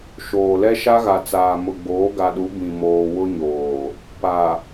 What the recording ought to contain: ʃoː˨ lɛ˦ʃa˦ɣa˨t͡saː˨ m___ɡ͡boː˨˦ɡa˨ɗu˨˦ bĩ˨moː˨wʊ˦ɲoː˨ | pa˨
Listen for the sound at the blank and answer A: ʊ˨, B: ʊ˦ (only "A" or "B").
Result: A